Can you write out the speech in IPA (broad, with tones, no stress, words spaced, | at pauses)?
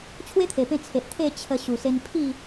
t͡ɕʰwe˦t̪ʰe˨˩pẽ˧ t͡sʰe˨ʔ t̪ʰe˥˧t͡ɕʰə˧ ɕu˨˩se˧npʰi˥˧